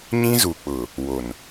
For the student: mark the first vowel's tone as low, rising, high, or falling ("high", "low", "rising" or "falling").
high